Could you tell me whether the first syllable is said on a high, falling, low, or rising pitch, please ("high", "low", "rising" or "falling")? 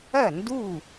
falling